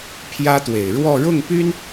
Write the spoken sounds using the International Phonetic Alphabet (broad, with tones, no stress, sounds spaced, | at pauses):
pʰ j ä˥ t̪ w e˨˩ ɪ̯ ɻ w ɔ˥˧ ɻ ʊ˥˩ ŋ p y˥ n